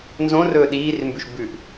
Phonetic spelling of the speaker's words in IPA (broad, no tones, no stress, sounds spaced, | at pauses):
n z õ r ɵː ɗ iː r m b ʉ ʃ b ʉ ʔ